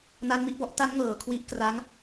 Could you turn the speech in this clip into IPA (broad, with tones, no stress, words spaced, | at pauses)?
na˦˥nmi˦˥ʔbɔ˦˥ʔ ta˦˥nŋɤː˩˦ kʰwi˦˥ʔ kraː˦˥ŋ